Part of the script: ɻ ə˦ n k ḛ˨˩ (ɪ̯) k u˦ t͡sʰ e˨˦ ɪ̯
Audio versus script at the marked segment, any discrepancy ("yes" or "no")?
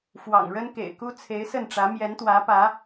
no